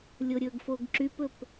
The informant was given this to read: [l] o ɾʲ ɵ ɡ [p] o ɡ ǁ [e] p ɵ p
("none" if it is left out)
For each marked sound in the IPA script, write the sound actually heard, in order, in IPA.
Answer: lʲ, f, y

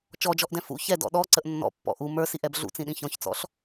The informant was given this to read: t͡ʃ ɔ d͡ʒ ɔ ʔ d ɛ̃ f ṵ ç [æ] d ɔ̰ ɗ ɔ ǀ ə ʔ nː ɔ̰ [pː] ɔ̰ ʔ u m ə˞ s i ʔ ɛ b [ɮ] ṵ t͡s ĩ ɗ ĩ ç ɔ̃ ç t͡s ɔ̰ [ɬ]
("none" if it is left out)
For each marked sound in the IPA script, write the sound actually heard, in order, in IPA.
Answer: ɛ, pː, ɮ, ɬ

